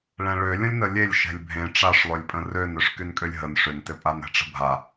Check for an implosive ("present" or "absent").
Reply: absent